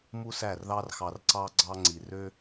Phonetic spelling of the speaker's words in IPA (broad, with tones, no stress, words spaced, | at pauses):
mu˦sæ˦˨rðɑ˦rxɑ˧r ǀɑ˧ɡ͡ǀɑ˧ ŋ͡ǀi˨rø˦